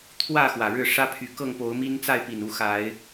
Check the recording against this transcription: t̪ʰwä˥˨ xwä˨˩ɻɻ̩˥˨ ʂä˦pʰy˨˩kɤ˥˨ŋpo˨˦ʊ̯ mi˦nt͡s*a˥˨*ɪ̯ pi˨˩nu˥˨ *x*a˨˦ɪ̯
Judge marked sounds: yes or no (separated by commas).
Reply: yes, yes